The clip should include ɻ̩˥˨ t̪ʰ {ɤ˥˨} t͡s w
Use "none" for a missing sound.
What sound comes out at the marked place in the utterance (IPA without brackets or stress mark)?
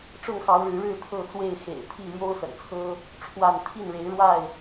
ɤ˥˨